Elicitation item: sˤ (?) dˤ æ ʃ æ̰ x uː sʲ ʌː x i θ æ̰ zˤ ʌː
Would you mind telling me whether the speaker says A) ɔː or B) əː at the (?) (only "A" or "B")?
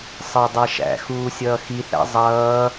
B